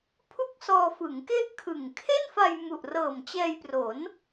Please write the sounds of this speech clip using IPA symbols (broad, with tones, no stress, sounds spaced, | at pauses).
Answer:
pʰ u˥˩ k̚ s ɔː˧ f ɯ˩˦ ŋ k e˥˩ ʔ kʰ ɯ˨˩ ŋ kʰ e˥˩ n f a˧ j m u˨˩ ʔ r ɤː˨˩ m t͡ɕ ɛː˧ j p r o˩˦ n